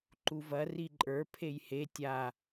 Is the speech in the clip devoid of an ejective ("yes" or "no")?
no